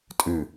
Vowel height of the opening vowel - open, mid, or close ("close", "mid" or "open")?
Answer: close